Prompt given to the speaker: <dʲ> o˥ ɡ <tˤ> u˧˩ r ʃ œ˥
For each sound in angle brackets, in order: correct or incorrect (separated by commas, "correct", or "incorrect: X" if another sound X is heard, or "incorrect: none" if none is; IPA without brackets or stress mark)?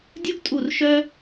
correct, incorrect: tʼ